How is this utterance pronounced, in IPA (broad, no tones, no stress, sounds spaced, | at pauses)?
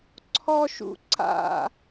ǀʰ ɔ ʃ ṵ ǀ a̰